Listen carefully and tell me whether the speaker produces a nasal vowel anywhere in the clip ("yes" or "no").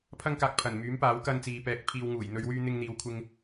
no